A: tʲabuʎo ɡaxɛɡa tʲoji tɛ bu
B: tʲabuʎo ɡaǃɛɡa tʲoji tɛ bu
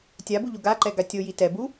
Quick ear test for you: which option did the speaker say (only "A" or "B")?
B